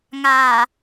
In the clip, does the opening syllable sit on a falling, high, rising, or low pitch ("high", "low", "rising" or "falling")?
low